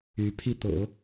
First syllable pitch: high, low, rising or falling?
rising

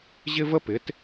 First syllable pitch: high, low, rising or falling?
high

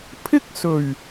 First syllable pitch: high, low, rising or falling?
high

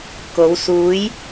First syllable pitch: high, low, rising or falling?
rising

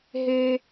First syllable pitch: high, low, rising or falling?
low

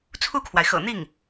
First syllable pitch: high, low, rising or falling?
falling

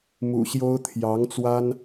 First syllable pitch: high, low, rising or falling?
low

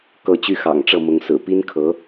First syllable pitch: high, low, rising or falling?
falling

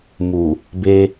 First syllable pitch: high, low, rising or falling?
low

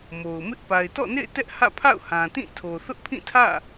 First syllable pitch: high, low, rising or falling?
low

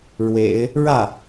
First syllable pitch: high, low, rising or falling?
low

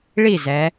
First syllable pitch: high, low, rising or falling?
falling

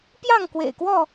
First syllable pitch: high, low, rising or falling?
falling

